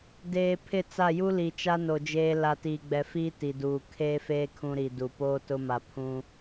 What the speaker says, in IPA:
d eː˨ pʰ ɪ˦˨ t͡s a˦˨ j u˦ l i˨ t͡ʃ a˦ n o˨ d͡ʒ eː˦ l a˨ t iː˨ ɡ͡b ɛ˨ f iː˦ t i˨ d uː˨ kʰ eː˦ f eː˦ kʰ ũ˦ ɾ i˨ d u˨ p oː˦ t ʊ˦ m a˨ pʰ ũ˦

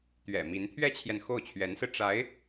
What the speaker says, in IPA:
t̪ ɥ ɛ̰˨˩ m i˧˥ n t̪ʰ ɥ ɛ˥ t͡ɕʰ j ɛ˨ n x o˥˩ ʊ̯ t͡ɕʰ ɥ ɛ˧˥ n s ɹ̩˧ ʈ͡ʂ a˧˥ ɪ̯

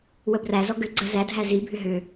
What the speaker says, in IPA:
w ə b r æ z ɔ ɡ ʏ ɡ͡ǀ ə z æ dʱ æ z i bʱ ʏ ɦ ʏ

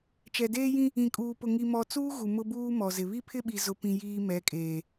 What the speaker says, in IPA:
t͡ʃ ɛ˨ d eː˦ j ĩ˦ | ĩ˨ kʼ uː˨ p ʊ˨ ŋ i˨ m ɔ˨ t͡s uː˦ ɣ u˨ m ʊ˦ b uː˦ m ɔ˨ z ɪ˨ β i˦ pʰ ɪ˦ ɓ i˨ z ʊ˨ p ĩ˨ j iː˦ m ɛ˨˦ kʼ eː˨

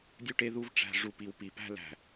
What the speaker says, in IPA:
dʲ u˦ ʈ e˦ ð u˦ v ʈ͡ʂ æ̤˨ ʐ u˨ p i˨ w p i˨ p æ̤˦ l æ̤˨

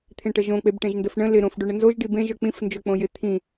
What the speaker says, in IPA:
t̪ʰ ẽ ʈ ə ʒ õ k͡p e b ʈ ẽ ʒ n d ə f ɳ ə̃ l ɪ ɾ õ f ɖ o ɳ ə n z o ʒ ɖ i b ẽ ʒ ə˞ k͡p ĩ f n d͡ʒ o k͡p õ j ɪ t̪ʰ ĩ

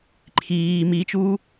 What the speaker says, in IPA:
ǃʰ iː m i t͡ʃ uː

